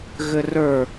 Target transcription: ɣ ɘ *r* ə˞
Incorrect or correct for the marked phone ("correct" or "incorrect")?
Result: correct